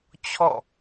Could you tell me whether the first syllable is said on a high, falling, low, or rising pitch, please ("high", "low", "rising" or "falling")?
falling